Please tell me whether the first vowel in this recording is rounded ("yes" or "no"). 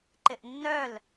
no